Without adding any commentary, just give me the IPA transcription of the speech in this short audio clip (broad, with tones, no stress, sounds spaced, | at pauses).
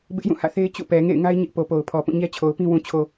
b ɪ˦ ʔ j ũ˦˨ h ä̰˦˨ θ e˦ ɪ̯ t͡ɕ ṵ˦˨ p ɛ˨ ŋ ḛ˦˨ ɪ̯ ŋ a˦ ɪ̯ ɲ ɪ˦ ʔ p o˨ p o˨ ʊ̯ pʰ ɔ˨ p ũ˦˨ ɲ ɛ˦ t͡ɕʰ o˨ ʊ̯ p ĩ˦ w ũ˨ t͡ɕʰ o˨